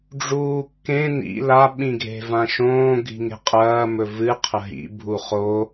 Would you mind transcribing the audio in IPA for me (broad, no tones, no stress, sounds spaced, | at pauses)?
ɖ͡ʐ uː kː ẽ n ḭ l a ɓ ĩ ɡʱ e̤ v ã ʃ õː ɡʱ i̤ ŋ e̤ qʼ ɐː m ɵ v ɨ qʰ ɐ ɦ ḭ bʱ u χ o